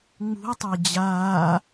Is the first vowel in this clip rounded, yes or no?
yes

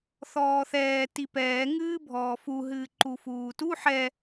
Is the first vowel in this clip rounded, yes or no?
yes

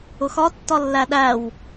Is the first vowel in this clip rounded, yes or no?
yes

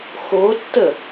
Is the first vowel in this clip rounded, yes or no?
yes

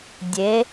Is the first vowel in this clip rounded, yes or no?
no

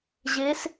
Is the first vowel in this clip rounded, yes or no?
no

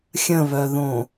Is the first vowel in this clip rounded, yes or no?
no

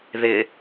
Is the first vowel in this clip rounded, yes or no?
no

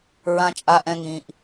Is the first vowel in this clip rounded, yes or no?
no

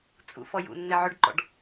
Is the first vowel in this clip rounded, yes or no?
yes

